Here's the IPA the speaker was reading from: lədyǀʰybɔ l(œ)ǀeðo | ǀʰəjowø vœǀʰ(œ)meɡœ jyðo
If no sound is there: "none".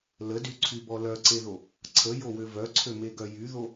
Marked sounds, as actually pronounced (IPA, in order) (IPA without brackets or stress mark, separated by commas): œ, ø